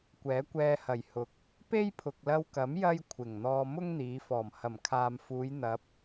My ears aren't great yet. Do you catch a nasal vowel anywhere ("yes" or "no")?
no